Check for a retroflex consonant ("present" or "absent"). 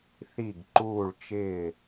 present